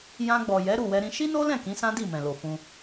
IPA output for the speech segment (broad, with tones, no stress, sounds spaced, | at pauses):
j ã˧ ɡ͡b ɔ˨ j ɛ˨˦ ɾ u˦˨ w ɛ˧ ɾ ĩ˧ ʃ i˦ n o˦ l ɛ̃˦˨ k ĩ˨˦ s ã˦ d i˦˨ m ɛ̃˨ l o˨ f ũ˧